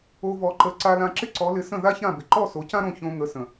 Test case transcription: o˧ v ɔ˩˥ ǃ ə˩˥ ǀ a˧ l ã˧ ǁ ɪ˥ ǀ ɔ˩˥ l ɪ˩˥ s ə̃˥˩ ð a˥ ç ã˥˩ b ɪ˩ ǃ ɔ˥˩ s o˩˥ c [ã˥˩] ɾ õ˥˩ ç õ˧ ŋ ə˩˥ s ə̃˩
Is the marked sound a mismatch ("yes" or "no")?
yes